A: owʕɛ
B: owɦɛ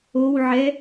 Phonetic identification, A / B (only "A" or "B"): A